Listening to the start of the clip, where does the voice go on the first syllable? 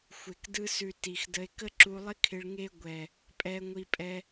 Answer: low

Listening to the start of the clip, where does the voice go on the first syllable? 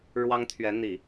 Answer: high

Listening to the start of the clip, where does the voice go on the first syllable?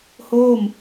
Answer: falling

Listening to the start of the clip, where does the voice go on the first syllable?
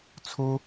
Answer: high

